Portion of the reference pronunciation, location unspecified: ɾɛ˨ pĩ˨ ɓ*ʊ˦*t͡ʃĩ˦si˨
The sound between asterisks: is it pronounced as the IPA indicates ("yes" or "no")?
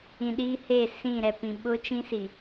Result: yes